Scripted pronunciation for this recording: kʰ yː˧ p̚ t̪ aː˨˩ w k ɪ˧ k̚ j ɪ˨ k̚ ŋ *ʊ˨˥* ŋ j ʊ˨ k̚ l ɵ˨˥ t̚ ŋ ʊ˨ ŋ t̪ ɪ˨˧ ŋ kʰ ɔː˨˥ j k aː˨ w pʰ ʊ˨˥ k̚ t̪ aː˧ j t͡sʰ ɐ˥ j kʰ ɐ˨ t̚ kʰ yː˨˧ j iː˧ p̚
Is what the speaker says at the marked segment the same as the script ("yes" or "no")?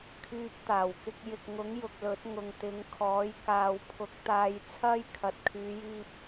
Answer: yes